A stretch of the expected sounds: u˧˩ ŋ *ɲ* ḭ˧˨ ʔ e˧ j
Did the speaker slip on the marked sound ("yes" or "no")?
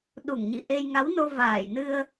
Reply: no